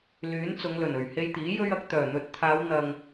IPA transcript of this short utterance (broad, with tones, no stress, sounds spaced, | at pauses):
l yː˨˥ n t͡s ʊ˨˧ ŋ l ɵ˨˩ n ɵ˨˩ ɥ h e˧ j t̪ iː˨˥ j ɵ˧ ɥ ɐ˨ k̚ t̪ œː˨˩ n̪ ɵ˨ t̚ t̪ʰ aː˨˧ w n̪ ɐ˨ ŋ